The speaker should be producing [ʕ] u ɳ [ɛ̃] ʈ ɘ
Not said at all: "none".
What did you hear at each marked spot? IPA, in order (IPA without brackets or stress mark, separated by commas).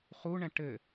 χ, ɛ̃